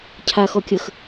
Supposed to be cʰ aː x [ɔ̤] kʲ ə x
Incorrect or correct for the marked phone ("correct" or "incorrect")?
incorrect